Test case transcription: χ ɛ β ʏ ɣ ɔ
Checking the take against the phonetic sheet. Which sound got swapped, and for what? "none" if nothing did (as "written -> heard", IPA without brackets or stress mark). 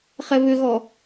none